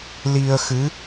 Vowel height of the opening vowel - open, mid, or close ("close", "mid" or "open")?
close